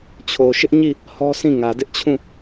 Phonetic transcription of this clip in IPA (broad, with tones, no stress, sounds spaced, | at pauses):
t͡ɕʰ o˨ ʃ ɪ˦ ʔ ɲ i˦˨ | h ɔ˦ sʰ ĩ˦˨ ŋ ä˨ d ɪ˦ ʔ t͡ɕʰ ũ˦˨